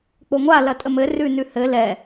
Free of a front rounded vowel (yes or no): yes